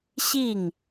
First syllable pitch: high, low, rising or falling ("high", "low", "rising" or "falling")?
falling